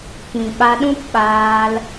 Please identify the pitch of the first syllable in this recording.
low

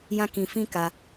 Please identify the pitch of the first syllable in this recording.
high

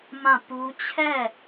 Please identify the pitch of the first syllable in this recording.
falling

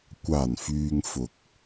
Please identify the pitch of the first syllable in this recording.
low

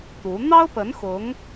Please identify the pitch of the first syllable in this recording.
rising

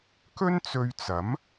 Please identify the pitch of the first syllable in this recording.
high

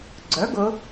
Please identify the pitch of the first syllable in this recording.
rising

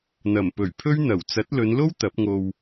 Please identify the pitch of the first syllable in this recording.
low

